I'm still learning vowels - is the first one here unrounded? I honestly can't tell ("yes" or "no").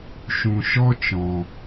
no